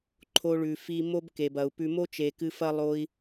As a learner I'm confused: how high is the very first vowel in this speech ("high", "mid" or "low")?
mid